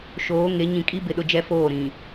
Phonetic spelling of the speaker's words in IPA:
ʃ oː˨˦ ŋ e˨˦ ɲ ĩ˨ kʼ i˦ b ɪ˨ ɗ ʊ˦ d͡ʒ ɛ˦ f oː˦˨ ɾ ĩ˨

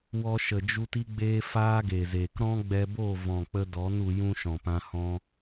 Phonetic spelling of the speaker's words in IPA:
w ɔ˧ ʃ ə˨ d͡ʒ u˧ t i˦ ɡ͡b eː˦ f aː˦ ɡ e˨ z eː˨ k ɾ ɔ̃˦ ɡ͡b ɛ˧ b o˦˨ v ɔ̃˨ k͡p ə˧ d ɔ˨˦ n u˧ j ũ˦ ʃ ɔ̃˨ p ã˧ h ɔ̃˦

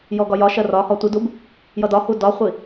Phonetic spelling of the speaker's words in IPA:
j ɔ ɡ ɒ j ɒ ʃ ɜ r ɒ h ɔ tʷ i d u b | j ʌ d ɒ h u d ɒ χʷ i

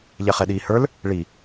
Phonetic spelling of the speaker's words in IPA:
ʎ ɛ χ ɛ ɗ iː h ə˞ l | ɭ i

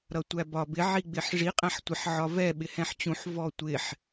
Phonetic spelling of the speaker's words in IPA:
ɾ ʌ tʷ æ b ɒ b ɪ ʕ i ɡ͡b ɪ ħ ʐ i qʼ æ̃ ħ tʷ ɪ ħ ʕ ɒ v ɛ ɓ ɪ h ɛ̃ ħ t͡ɕ ũ ħ v ɔ tʷ ɪ ħ

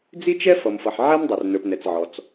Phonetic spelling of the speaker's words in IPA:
d͡z i˥ t͡ʃ ɛ˥ f ʌ˩ m f ʌ˩ ħ ʕ ɛ˥ m dˤ ə˩ r n ə˞˩ p n ɛ˩ t͡s ʕ ɔ˩ t͡s

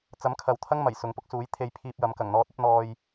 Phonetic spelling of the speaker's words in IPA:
t͡s ɐ˨˥ m kʰ ɐ˨ w t̪ʰ ɐ˥ ŋ m ɐ˨˩ j s ʊ˨˥ ŋ p ʊ˧ k̚ s uː˨˥ j t̪ʰ e˧ j pʰ iː˧ p̚ j ɐ˨˥ m k ɐ˨˩ ŋ n̪ ɔː˧ t̚ ɐ˥ p̚ n̪ ɔː˧ j

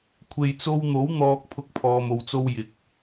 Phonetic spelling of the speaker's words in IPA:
kʷʰ e˨ j t͡s o˧ w n̪ o˨˥ w n̪ ɔː˧ k̚ pʰ ʊ˧ k̚ pʰ ɔː˨ m o˨ w t͡s o˧ w j ɪ˨ k̚

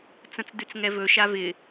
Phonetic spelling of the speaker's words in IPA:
t͡s ə̃ t͡s d ʉ t͡s ŋ ɛ v ɵ ʃ a v ɪ

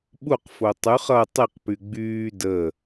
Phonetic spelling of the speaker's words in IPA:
ɓ u q f o tˤ ʉ χ ʌ tˤ i q p y ɡ͡b yː d ə

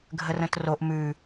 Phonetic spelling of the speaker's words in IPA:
ɡʱ ə r ə̃ t r o ʔ m ʉ

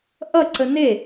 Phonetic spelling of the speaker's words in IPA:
ʔ ʌ ǀ ə n e

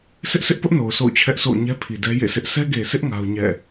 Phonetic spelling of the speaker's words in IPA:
sʰ ɪ˦ ʔ sʰ ɪ˦ ʔ p ʊ˦ ʔ n o˨ ʊ̯ sʰ o̰˦˨ ʊ̯ t͡ɕʰ ɛ˦ ʔ sʰ o̰˦˨ ʊ̯ ɲ ɛ˦ pʰ i˨ d ɛ˦ j ḛ˦˨ sʰ ɪ˦ ʔ sʰ ɛ˦ ɡ e˨ s ɪ˦ ʔ ŋ a˦ ʊ̯ ɲ ɛ̰˦˨

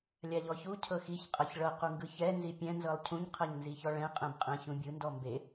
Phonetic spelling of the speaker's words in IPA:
lʲ a ʎ ɔ ç u cʰ ɤ x i ç qʼ ɤ ç ɭ ɤ q u ŋ ɡ ɯ ç ɛ n z i pʲ ɛ̃ n z ɤ lˠ cʰ ũ ɲ qʰ ɤ ɲ n z i ç ɔ ɭ ɛ̃ qʼ ɛ̃ b qʼ ɛ̃ ç ũ bʲ ɯ n d ɔ m b e

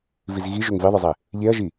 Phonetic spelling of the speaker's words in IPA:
v i z ɣ i ʒ ø ŋ v i ðˤ ɯ zˤ e | ʎ e ɐ̯ ʒ i

